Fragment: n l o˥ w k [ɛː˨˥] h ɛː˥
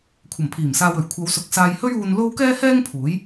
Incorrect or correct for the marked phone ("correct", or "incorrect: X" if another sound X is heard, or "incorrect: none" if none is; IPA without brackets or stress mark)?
incorrect: ɛː˥